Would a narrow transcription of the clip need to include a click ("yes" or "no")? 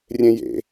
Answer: no